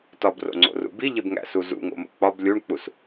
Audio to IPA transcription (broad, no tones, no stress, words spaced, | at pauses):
tɒbro̰ŋ͡ǀo̰rṵ biʎebŋæ̰su zṵŋo̰mo̰ k͡pɒb lʲuɳk͡pus